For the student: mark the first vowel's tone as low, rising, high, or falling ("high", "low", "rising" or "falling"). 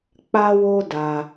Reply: high